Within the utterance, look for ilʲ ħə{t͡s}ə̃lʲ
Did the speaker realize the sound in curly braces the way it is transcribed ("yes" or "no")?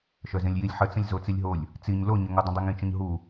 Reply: yes